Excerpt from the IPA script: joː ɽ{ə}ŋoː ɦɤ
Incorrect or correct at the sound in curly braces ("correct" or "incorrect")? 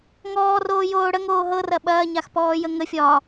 correct